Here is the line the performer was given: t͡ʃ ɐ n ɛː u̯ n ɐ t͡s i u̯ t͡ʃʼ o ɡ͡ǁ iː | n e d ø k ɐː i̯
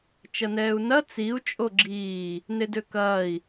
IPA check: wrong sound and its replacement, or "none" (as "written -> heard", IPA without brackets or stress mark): none